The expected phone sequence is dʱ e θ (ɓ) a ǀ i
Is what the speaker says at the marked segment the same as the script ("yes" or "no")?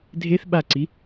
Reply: yes